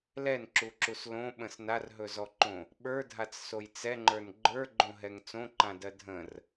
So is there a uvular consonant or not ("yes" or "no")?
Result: no